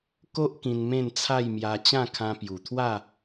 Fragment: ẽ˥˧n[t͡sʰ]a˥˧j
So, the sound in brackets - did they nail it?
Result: yes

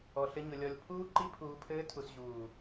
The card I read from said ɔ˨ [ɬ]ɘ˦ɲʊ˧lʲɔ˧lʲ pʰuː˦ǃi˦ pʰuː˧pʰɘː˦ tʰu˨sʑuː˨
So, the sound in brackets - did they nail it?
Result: yes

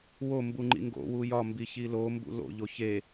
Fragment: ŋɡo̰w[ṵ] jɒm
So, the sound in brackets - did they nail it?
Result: no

